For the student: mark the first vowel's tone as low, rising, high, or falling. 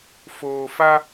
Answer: low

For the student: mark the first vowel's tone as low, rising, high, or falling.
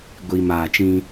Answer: low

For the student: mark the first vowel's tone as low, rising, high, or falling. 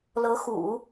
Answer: rising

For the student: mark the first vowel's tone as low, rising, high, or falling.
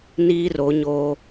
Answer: high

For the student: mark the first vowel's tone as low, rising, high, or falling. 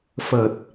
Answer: low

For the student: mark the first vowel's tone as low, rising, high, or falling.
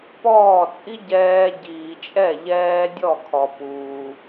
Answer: falling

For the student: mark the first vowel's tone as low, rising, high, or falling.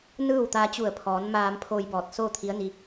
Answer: falling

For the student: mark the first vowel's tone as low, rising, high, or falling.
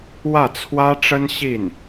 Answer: falling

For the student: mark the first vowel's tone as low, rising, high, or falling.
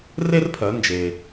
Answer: high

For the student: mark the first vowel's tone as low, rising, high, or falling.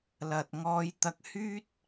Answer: low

